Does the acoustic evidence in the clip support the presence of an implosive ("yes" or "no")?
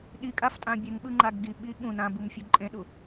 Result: yes